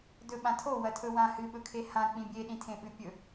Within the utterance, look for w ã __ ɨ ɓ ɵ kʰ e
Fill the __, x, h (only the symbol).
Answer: h